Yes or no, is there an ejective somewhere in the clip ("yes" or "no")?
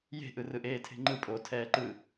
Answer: yes